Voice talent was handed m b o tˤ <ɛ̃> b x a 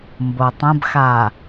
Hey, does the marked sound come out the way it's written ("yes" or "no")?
no